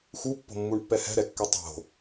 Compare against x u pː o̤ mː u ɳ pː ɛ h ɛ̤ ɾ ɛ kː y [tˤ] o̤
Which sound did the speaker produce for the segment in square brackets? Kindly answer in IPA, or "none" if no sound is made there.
tˤ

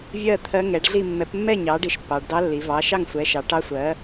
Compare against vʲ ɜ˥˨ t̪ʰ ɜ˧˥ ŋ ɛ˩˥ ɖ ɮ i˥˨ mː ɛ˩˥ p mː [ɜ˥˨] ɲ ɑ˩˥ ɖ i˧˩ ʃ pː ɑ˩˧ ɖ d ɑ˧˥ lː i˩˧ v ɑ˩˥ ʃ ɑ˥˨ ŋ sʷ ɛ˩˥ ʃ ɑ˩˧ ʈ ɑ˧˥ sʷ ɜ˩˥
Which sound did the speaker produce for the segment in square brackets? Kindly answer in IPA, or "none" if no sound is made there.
ɛ˥˨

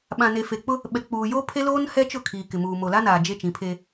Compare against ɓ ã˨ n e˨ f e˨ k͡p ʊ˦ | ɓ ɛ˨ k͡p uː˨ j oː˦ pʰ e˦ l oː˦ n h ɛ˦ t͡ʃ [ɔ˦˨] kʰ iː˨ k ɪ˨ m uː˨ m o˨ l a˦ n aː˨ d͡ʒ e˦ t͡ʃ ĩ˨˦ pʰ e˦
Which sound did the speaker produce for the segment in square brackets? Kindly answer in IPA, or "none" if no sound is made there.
ʊ˦˨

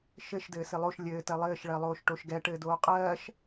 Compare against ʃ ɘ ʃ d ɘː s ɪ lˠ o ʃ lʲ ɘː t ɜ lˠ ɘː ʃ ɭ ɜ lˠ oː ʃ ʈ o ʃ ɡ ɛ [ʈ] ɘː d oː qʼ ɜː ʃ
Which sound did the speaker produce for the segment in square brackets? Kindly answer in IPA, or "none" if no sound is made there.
ʈ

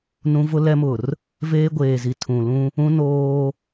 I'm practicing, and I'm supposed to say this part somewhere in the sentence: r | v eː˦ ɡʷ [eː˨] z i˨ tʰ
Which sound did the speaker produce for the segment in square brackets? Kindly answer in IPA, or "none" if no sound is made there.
eː˨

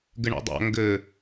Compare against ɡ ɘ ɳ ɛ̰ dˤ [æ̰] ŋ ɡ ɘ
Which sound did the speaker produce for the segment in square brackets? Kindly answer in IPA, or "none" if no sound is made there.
a̰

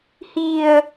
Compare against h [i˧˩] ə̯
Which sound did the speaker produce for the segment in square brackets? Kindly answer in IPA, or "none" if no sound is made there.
i˧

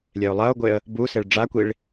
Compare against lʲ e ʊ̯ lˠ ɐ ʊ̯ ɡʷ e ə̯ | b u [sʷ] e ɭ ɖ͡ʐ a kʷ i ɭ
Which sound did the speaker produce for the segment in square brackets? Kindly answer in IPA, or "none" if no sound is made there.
s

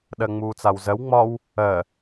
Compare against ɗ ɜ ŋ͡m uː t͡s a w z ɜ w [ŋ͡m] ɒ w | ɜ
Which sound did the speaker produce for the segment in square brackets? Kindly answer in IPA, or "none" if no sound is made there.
ŋ͡m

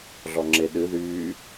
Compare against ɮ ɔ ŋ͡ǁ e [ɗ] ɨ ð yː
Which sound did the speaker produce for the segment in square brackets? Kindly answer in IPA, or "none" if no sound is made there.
ɗ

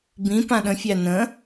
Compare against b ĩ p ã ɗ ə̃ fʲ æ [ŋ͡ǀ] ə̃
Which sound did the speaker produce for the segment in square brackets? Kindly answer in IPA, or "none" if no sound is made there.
n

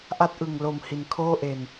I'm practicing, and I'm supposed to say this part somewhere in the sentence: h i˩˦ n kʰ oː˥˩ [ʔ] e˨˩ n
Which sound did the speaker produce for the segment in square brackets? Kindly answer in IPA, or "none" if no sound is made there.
ʔ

